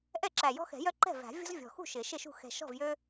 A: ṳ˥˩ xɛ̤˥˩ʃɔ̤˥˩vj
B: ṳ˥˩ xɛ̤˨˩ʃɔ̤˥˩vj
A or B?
B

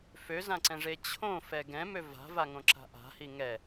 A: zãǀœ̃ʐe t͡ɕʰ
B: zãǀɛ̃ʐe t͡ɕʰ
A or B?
B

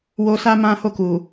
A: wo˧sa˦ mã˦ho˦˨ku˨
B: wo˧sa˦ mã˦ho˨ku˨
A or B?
A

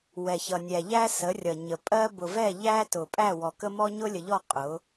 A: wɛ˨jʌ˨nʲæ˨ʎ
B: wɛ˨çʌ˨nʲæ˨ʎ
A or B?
B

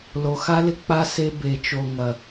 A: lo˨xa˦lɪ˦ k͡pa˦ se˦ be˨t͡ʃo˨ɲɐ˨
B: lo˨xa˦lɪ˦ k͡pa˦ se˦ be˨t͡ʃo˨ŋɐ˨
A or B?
B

